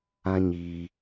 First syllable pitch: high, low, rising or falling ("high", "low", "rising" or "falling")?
high